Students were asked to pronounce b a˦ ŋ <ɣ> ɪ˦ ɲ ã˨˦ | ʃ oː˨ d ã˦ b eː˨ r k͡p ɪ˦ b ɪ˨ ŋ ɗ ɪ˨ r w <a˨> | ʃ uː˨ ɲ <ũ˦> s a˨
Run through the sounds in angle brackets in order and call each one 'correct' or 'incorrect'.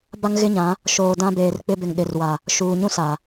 correct, correct, correct

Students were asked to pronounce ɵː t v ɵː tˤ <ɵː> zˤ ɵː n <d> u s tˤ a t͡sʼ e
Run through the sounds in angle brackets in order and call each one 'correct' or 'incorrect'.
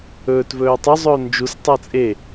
incorrect, incorrect

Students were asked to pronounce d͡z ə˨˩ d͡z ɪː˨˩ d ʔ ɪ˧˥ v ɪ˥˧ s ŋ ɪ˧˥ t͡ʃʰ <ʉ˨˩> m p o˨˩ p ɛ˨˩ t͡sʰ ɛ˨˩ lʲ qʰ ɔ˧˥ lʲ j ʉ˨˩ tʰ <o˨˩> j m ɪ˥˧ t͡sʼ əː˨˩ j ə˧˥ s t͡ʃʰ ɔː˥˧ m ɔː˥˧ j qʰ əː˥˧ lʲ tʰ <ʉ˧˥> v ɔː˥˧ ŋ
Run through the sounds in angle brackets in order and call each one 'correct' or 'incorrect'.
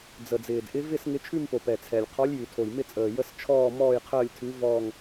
incorrect, correct, correct

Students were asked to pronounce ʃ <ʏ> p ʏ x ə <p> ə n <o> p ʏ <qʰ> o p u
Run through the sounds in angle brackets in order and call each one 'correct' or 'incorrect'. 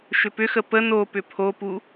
correct, correct, correct, incorrect

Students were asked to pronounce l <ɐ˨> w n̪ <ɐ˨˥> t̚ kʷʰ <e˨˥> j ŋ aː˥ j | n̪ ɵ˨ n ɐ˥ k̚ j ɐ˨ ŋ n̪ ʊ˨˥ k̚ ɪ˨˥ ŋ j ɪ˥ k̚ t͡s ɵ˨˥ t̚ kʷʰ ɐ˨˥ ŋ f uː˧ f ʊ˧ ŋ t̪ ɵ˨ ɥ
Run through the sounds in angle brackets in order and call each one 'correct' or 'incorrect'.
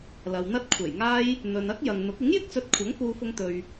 correct, incorrect, incorrect

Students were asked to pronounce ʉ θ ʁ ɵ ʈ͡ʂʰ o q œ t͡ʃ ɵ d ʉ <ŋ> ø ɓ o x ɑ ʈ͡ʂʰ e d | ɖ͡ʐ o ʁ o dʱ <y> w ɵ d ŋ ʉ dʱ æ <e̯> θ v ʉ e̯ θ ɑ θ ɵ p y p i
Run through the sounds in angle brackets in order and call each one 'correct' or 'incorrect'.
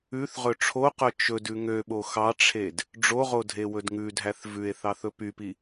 correct, incorrect, incorrect

